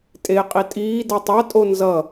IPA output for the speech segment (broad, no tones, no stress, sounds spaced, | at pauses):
tʼ e qʼ i tʼ iː d ʌ tˤ a tʼ o n z ʌ